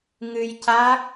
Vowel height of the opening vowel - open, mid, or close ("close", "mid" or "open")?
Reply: close